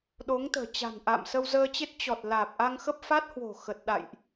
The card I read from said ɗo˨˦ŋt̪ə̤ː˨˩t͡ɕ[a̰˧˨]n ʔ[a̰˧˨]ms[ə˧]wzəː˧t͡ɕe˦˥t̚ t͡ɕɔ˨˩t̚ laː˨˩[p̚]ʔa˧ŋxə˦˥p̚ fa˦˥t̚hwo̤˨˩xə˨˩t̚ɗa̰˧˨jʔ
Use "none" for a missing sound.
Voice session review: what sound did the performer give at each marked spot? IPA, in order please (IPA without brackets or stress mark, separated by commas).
a̤˨˩, a̰˧˨, ə˧, p̚